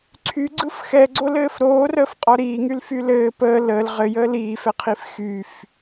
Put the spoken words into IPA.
ǀʰyɡ͡ǀɯf xɛɡ͡ǀolɘːf ɾoːrəːfqʼɔ ɾiːŋylfy lɘː pəː ləːl ʁɘjəːl iːfɛqʰif xyf

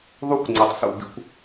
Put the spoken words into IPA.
ðˤu˦kʷ ŋ͡ǀʌ˨tˤsṵ˦˨bḭ˦kʷ

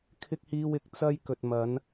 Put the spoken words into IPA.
kʰɪ˥k̚ hiː˥wɪ˧k̚ t͡sɐ˥j kɵ˨t̚ mɐ˨˧n

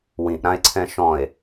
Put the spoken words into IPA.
wĩʔɾãe̯ǀʰɛ̃ ʃɔ̃e̯

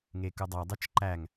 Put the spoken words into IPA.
ŋekɯdˤɑdˤɯt͡ʃ ǃæŋ

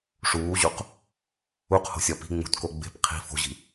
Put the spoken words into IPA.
ʂuːʑuq | uqho̤sʲɒ pi̤ ŋ͡mṳtko ɡ͡be̤p qʰi̤ fo̤ʑi̤

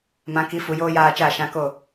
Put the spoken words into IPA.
mã˨˦ki˨˦ fu˨joː˦ jaː˧ t͡ʃaː˦˨ʃã˧ko˦˨

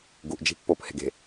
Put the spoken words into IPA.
ɡuʔd͡ʒi̤ pːophe̤ɡe̤

